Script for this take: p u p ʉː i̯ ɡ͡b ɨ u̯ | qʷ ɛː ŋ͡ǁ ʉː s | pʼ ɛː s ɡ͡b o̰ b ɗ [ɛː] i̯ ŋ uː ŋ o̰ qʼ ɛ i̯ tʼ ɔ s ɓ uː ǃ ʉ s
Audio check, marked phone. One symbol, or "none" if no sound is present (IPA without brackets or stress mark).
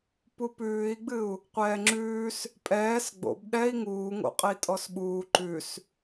ɛ